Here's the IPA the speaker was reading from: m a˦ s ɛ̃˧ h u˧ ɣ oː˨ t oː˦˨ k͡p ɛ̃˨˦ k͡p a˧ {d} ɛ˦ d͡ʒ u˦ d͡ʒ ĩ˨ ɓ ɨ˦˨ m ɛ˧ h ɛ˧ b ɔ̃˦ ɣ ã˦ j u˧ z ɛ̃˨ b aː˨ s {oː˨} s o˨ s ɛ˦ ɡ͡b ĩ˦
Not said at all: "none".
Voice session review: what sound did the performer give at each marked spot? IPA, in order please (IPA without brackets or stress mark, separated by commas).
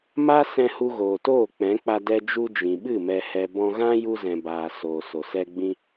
d, oː˨